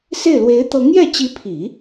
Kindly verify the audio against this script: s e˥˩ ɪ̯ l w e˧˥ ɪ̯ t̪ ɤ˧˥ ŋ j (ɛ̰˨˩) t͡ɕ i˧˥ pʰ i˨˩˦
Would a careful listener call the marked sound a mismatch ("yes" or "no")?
yes